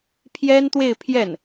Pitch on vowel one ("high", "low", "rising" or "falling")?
high